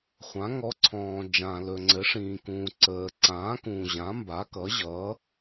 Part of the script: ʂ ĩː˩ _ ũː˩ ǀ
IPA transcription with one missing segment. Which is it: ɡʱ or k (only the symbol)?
k